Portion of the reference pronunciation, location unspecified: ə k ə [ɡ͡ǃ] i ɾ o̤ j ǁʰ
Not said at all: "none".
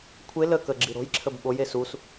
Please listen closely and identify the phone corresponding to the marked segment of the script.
ɡ͡ǁ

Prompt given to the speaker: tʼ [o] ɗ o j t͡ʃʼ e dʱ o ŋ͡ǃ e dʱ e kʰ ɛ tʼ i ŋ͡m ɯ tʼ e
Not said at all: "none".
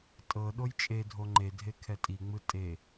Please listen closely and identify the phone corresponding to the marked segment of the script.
ɤ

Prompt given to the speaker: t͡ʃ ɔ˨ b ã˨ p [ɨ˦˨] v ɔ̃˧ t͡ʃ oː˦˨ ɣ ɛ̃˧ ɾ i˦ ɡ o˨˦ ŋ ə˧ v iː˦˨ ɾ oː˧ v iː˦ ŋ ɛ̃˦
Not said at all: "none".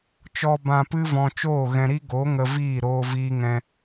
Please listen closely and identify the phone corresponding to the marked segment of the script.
ɨ˦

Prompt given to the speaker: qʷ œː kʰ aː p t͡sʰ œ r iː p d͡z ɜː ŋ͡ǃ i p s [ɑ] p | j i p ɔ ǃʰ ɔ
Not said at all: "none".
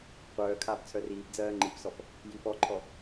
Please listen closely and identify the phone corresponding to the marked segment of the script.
ɔ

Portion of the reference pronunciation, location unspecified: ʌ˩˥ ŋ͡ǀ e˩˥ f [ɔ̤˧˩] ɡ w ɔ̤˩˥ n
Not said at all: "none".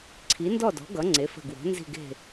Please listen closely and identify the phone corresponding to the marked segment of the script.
ə̤˧˩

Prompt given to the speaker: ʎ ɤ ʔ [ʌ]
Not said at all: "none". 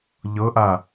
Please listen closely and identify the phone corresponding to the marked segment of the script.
a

